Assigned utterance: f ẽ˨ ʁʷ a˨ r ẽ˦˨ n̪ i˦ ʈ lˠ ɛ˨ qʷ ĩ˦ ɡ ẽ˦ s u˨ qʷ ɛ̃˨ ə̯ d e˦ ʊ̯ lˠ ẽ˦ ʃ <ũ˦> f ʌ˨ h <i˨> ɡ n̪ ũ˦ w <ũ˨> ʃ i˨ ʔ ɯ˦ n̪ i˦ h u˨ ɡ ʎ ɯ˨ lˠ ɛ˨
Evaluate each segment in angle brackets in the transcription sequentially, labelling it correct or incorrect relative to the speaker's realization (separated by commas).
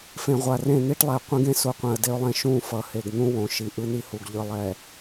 incorrect, incorrect, incorrect